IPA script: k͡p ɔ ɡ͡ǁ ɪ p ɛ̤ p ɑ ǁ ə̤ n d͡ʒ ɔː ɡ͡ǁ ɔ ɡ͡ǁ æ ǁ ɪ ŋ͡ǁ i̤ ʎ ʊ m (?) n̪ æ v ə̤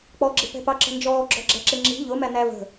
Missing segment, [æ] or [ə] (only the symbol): æ